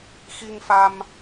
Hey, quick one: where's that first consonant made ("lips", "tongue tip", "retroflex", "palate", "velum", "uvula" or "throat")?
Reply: velum